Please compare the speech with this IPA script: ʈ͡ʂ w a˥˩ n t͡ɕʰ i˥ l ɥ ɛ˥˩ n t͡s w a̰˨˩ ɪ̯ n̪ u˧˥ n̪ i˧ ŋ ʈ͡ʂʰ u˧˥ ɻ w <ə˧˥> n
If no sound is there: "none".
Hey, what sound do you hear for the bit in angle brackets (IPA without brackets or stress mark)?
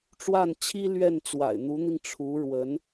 ə˧˥